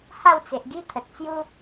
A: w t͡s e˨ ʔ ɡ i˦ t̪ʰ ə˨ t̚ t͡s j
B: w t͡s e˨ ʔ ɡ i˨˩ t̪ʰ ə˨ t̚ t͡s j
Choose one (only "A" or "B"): A